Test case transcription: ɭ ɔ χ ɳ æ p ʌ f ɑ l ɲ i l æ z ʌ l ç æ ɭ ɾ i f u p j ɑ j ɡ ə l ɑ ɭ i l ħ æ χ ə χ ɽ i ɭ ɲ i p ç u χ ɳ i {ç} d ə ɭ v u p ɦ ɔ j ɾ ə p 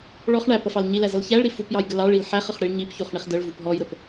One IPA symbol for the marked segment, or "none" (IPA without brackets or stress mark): χ